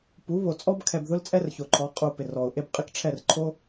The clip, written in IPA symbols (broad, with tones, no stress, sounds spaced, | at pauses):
p u˨˦ β o˨ t͡sʼ ɔ˦ b kʰ ɛ˧ b ð ʊ˦ l t͡sʼ ɛ˦ r ç o˨ ǃʰ ɔ˨˦ qʼ u˧ p ɪ˨ r ɔ˨ ʊ̯ ʔ e˦ b qʼ ɪ˦ k ʈ͡ʂʰ ɛ˦˨ r ǃʰ o˦